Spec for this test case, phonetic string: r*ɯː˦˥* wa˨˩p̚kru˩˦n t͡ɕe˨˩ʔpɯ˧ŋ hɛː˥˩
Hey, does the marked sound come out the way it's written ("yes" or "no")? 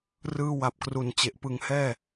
no